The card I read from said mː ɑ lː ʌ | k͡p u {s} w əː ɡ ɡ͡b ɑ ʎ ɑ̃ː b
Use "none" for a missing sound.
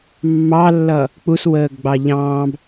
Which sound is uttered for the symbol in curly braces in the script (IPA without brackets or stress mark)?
s